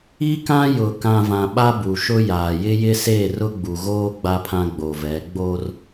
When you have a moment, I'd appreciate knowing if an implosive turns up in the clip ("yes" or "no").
yes